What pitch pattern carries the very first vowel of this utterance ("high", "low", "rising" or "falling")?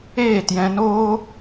falling